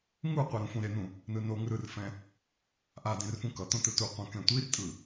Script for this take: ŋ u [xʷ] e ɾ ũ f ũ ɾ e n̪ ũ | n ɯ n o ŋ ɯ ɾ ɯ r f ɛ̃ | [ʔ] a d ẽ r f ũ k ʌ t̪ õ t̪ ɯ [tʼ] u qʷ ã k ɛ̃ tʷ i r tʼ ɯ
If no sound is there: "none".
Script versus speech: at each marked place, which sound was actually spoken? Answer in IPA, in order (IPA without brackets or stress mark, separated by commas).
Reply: qʷ, ʔ, t